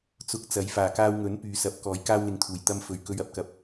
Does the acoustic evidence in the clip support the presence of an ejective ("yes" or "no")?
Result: no